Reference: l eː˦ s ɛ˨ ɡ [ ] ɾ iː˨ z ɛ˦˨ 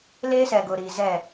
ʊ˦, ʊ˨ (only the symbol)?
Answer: ʊ˨